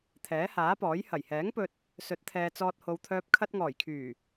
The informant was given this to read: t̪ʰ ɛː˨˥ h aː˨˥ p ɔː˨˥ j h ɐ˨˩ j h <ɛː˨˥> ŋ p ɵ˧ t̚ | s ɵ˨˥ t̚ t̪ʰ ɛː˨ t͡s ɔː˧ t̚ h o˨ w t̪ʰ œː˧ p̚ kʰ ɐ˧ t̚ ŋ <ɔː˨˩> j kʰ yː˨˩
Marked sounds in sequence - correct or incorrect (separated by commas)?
correct, correct